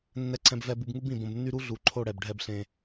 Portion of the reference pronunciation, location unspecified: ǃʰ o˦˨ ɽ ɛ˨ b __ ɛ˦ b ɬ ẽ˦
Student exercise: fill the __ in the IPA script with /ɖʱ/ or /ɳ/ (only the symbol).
ɖʱ